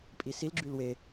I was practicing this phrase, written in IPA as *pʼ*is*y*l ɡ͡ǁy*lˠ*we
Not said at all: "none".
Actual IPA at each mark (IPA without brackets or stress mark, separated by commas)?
pʼ, i, l